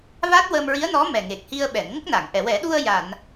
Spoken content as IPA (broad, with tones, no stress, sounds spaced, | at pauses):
v a˦˥ t̚ w ə˧ m ɹ i˧˥ ə̯ n ɔ˧˥ m ɛ˨˩ ŋ e˨˩ k̚ h i˧ ə̯ ɓ ɛ˨˩˨ n ŋ ə˦˥ k̚ n a˨˩˨ ŋ ʔ ɛ˨˩˨ w ɛ˨˩˦ ɗ u˧ ə̯ j a˨˩˨ n